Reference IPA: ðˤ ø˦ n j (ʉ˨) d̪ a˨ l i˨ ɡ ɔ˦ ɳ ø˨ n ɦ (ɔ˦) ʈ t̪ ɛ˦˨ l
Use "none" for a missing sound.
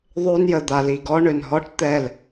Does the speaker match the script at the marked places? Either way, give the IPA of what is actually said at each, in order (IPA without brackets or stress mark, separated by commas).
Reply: ə˨, ɔ˦